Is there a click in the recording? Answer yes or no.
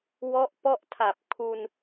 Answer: no